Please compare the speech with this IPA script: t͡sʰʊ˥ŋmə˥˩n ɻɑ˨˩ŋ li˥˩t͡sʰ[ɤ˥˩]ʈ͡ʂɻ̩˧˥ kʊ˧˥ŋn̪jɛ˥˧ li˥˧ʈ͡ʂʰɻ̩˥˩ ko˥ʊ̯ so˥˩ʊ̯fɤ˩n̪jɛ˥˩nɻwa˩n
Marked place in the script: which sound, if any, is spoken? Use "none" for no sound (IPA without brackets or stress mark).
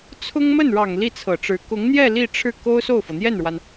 ɤ˨˩